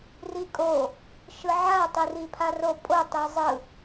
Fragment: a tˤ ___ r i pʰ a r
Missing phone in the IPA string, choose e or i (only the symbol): i